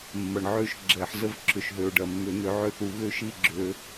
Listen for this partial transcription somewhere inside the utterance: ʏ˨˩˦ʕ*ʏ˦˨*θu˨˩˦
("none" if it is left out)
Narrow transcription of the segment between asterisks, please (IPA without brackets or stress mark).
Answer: ʏ˦˨